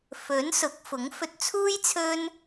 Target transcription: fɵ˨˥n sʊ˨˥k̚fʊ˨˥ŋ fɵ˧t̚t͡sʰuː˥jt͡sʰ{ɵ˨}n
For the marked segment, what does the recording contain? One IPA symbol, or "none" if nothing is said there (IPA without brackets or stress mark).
ɵ˥